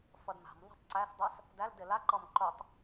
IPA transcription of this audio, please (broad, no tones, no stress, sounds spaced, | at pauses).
f ʌ d m a̤ m ðˤ a̤ tˤ ǀ æ s dˤ o s | d æ l d ɪ l a ǃ ɔ m ǃ o tˤ